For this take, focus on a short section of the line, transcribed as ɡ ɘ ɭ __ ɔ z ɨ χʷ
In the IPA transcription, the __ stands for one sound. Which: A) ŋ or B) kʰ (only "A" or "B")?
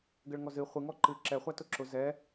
A